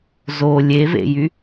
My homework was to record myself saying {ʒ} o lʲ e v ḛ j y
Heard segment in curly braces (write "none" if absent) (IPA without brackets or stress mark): z